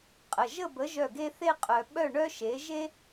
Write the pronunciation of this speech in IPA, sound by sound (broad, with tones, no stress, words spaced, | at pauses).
qʼə˩˧˩ʒə˥˨bə˨˥ ʒœ˥˨ɡe˥ θe˥qʼœ˧ ɓœ˥˨ɳœ˥ ʃe˨˥ʒe˥